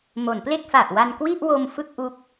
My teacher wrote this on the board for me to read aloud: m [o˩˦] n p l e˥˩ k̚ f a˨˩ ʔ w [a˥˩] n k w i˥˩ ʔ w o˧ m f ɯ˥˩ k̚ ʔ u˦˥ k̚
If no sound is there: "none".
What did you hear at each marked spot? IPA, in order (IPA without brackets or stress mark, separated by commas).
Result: o˩˦, a˧